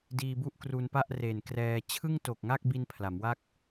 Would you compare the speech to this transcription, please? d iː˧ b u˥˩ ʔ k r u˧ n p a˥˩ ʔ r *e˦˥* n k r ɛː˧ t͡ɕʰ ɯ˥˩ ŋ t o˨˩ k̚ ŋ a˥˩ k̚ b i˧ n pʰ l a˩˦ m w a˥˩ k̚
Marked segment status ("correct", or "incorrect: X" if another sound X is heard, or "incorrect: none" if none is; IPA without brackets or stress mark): incorrect: e˨˩